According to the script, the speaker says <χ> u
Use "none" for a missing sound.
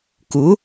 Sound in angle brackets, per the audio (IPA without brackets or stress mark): k